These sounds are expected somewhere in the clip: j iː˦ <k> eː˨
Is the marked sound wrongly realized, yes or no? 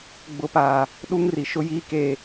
no